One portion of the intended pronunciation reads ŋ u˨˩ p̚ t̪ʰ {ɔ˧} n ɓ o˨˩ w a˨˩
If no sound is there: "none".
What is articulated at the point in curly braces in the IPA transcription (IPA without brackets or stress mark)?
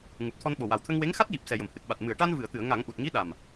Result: ɔ˧